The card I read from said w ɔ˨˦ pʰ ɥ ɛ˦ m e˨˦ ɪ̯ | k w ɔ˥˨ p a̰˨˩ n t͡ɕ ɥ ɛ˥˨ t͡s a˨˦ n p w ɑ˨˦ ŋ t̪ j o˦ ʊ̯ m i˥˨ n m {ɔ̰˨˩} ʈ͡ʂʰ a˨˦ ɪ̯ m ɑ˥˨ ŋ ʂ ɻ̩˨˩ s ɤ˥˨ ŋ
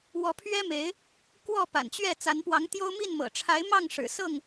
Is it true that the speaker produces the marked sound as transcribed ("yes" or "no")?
no